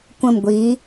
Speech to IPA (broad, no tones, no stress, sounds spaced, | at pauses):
kʷ ə̃ m ɡʷ i